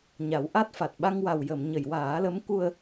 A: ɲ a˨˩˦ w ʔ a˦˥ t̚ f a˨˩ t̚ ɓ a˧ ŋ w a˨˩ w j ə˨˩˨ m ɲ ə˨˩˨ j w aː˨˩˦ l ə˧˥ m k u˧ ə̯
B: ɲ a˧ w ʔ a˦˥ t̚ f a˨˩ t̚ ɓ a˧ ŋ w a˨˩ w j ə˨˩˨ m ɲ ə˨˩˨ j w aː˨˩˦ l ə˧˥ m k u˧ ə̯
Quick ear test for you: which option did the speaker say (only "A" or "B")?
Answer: A